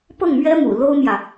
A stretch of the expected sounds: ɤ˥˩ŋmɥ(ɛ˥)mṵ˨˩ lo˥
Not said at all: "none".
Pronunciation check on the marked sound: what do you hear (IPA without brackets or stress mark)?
ɛ˥